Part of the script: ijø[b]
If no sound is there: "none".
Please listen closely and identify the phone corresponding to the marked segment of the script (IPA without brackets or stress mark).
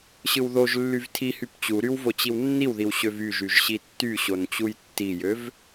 v